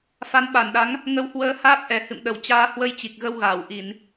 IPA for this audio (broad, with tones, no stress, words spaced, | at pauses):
fa˨˦nɓa˧˩nɗa˨˦ŋ | ŋə˨˦whwəː˨˦haː˦˥p̚ ʔɛ˧˩hɨ̰˧˨mɗə˧˩wt͡ɕaː˧ hwə˧jt͡ɕi˨˩k̚ɣə˧w ɣaː˧˩wʔi˧˩˨n